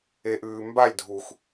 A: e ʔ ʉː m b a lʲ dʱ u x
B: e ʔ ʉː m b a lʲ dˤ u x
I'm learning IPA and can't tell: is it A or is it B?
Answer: A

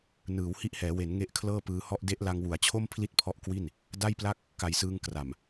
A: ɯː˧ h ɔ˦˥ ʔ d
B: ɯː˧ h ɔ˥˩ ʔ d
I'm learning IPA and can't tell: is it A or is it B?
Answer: B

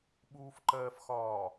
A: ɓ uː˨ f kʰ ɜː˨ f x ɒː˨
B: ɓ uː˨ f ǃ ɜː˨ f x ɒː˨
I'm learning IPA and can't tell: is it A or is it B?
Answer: B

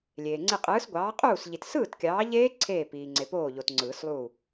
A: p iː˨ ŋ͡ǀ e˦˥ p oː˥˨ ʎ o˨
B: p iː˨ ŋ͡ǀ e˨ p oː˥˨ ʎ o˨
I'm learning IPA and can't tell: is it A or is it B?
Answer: B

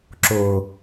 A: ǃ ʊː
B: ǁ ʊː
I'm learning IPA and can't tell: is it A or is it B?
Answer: B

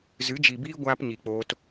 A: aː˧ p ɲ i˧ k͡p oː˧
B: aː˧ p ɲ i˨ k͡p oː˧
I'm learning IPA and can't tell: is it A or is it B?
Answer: B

